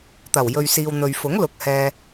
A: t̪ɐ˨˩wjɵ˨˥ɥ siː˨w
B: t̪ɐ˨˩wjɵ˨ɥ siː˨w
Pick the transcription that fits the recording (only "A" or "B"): B